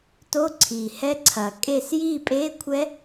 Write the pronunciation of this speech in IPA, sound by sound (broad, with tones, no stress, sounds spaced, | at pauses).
t o˧˥˧ ǀʰ i˨˩ h ɛ˦˥ ǀʰ ɐː˨˩ kʼ e˥˨ s j iː˥˨ pʼ eː˧˥˧ kʷʰ ɛ˦˥